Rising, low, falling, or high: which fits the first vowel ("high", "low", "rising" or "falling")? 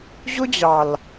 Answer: high